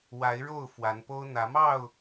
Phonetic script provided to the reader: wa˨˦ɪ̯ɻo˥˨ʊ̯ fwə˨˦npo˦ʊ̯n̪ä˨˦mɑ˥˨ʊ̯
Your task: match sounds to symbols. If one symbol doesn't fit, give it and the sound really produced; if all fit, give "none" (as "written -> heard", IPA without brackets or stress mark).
ə˨˦ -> a˨˦